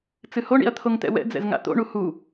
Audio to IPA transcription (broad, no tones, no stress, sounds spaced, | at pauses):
t͡s ɨ h o ɳ ḭ ɐ̯ t̪ʰ o ŋ t̪ ɛ̰ w ɛ̰ d͡z ɛ̰ z ŋ a̰ t̪ o̰ ɳ u h u